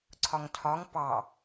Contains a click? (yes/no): yes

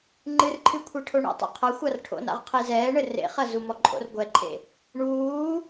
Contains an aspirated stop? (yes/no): yes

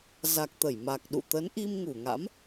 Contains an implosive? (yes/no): yes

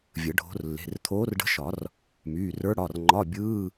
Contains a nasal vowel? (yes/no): no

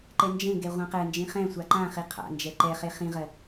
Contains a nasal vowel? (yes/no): yes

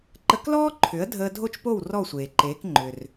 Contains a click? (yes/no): yes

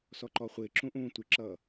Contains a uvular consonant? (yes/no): yes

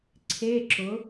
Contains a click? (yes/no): yes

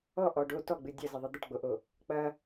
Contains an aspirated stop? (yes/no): no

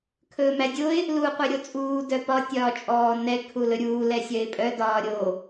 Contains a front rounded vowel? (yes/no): yes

